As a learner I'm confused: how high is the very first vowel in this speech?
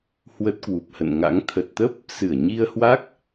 mid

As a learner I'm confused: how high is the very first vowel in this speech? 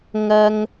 low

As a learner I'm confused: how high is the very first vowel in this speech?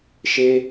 mid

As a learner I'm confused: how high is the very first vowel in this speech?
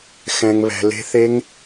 mid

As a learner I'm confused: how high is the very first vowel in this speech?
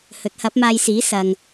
mid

